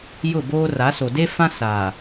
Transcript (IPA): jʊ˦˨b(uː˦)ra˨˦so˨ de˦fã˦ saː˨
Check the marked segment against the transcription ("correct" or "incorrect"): incorrect